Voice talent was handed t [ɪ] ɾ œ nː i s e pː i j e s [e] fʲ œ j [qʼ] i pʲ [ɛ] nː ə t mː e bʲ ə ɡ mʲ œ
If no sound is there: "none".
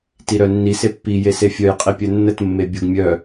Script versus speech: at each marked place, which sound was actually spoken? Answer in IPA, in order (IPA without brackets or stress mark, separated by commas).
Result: i, e, qʼ, œ